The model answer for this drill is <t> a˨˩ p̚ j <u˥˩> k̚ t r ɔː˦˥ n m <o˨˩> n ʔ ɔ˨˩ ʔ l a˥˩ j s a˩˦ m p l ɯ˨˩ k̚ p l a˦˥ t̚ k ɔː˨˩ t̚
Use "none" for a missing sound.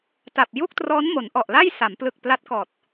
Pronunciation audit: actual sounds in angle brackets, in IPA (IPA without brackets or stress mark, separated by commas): t, u˥˩, o˩˦